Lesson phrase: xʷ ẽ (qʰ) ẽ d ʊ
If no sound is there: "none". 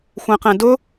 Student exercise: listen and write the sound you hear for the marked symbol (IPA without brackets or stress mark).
q